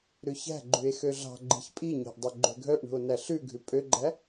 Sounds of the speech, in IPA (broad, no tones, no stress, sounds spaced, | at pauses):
ɾ ʉ ç æ̤ ɡ͡ǃ ʉ e̯ x ø ɮ ɑ̤ ɡ͡ǃ i̤ ç pʼ i ɲ æ̤ ʔ dˤ œ ɡ͡ǃ ø ɡʱ œ ʔ ɳ ṳ o̯ n æ ɬ ʉ ɡʱ ʉ pʼ ø ɡ͡ǃ æ